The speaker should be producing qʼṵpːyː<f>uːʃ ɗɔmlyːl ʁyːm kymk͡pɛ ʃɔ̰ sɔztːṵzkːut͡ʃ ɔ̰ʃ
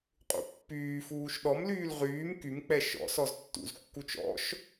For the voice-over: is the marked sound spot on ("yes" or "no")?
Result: yes